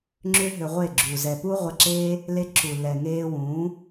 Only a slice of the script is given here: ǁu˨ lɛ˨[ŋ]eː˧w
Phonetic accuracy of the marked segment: correct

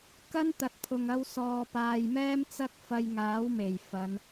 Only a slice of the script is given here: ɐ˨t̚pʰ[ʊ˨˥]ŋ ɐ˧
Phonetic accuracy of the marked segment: incorrect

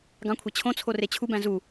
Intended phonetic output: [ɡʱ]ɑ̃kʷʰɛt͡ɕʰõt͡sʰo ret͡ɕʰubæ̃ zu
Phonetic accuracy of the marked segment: incorrect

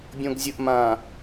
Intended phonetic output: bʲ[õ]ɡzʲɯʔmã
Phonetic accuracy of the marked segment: correct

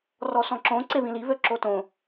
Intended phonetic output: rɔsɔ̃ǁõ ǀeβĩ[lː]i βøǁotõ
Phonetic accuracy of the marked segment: incorrect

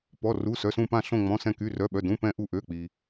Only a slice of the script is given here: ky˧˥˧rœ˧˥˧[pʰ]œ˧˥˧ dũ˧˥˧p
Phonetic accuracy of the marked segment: incorrect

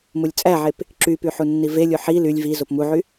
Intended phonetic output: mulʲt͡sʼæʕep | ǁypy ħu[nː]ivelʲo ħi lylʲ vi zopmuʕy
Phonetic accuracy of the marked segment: correct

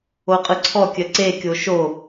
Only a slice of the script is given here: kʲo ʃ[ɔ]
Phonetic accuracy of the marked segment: incorrect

